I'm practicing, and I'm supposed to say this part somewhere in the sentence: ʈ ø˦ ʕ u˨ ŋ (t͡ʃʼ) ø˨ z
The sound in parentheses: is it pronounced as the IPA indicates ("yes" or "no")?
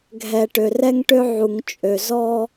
yes